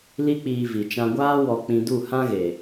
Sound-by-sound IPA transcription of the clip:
li˦k͡piː˧ vi˨t͡ʃã˧ɡʷaː˦ wɔ˧k͡pĩ˧du˦˨ hã˦ɣe˨

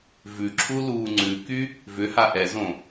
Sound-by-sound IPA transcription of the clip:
vʉǁʰu luːŋ͡ǀʉky | vʏha ʔɛzõ

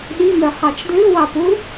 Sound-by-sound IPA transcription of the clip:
ɗimœ χɑt͡ʃdlʉwɑpu

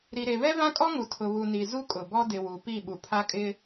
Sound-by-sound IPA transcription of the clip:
ɾi˨ɾe˨βɛ˦ vã˦kʼɔ˦ŋu˨ tʰʊ˨βu˨ni˨ zu˦kʼʊ˨bɔ˦ dɪ˨wu˨pi˦˨ ɓu˨pʰa˦kʼɪ˦

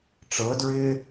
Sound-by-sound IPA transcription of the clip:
ʈ͡ʂɤdɹɪː

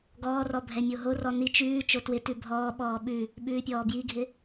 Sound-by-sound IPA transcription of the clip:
ɡɔːrɔ bʱɛmʲoɦorɔ ni t͡ʃʉː t͡ʃotwɪtʉ bʱɔːɓɔː ɓʉ | ɓʉːpʲɔːbjiɡʱɪ

